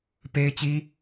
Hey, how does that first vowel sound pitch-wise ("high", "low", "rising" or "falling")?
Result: high